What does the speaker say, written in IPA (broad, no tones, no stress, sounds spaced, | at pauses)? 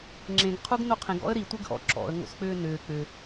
ŋ͡ǁ ẽ ɡ qʰ u ɡ n o qʰ ẽ ɡ ɔ̰ ə̯ ɾ i tʷ e ɡ ʔ ɔ̰ ǁ ɔ̰ ə̯ ŋ o̰ s k͡p ʏː n ʏː k͡p ʏ